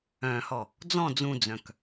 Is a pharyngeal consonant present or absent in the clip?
absent